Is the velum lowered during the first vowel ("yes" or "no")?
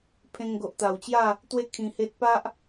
yes